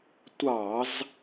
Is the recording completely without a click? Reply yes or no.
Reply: yes